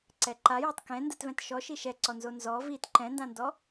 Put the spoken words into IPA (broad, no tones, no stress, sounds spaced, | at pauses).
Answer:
ǀ ɛ ǃ a j ɔ tˤ k ɛ̃ n d ɯ t v ɛ̃ t ʃ ɔ ʃ i ʃ ɛ ǀ ɔ n z o n z ɔ v i t ǃ ɛ̃ n d ã n d ɔ